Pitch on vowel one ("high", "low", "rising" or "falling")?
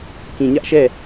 low